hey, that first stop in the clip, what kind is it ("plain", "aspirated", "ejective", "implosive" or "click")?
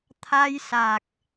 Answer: aspirated